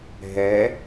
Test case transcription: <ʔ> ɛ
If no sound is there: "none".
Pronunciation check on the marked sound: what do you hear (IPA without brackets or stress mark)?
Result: ɦ